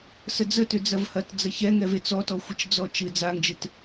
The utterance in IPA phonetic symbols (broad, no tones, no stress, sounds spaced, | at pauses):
s ə d͡z ə t ʏ d͡z ɐ v h ɐ t d͡z ɐ ç ɛ ŋ ɛ v e t͡s ɔ t ɔ xʷ ɨ t͡ʃ d͡z ɔ t͡ʃ ɨ d͡z a ŋ d͡ʒ ɨ t